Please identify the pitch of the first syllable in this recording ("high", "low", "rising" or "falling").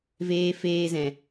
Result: high